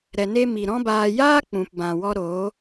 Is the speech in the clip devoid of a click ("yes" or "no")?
yes